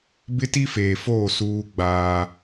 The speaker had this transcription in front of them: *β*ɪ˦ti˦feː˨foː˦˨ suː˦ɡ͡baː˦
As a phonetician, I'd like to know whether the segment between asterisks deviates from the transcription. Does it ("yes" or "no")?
yes